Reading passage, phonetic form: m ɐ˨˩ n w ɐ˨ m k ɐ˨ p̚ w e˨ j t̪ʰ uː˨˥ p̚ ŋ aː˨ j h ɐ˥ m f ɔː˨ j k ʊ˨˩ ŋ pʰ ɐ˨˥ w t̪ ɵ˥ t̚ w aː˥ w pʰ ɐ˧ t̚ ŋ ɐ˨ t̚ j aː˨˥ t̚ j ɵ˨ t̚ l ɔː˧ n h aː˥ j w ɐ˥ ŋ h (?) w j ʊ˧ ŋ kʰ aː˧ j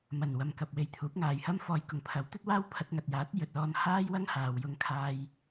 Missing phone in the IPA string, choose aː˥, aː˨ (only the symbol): aː˨